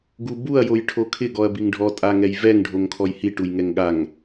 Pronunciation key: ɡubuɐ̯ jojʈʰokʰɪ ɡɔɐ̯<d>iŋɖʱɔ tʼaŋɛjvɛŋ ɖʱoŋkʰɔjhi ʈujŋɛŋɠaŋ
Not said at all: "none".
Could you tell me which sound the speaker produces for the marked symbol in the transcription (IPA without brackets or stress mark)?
b